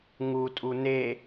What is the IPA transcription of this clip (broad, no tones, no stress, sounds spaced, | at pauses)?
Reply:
ŋ u tʼ u n e